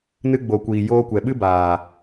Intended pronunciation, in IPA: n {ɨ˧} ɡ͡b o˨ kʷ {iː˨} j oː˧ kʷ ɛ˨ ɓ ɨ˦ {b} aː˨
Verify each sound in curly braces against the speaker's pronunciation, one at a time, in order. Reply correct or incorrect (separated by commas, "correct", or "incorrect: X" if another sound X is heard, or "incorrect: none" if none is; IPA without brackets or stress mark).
correct, correct, correct